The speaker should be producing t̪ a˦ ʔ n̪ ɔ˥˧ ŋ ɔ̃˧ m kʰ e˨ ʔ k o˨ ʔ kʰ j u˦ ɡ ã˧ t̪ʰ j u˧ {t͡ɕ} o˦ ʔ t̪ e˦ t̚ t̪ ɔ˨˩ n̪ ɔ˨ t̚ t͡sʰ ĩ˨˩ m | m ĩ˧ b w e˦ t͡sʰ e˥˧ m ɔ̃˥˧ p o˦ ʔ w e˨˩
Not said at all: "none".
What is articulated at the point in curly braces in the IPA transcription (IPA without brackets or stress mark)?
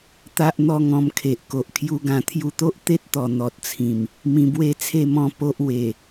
t̪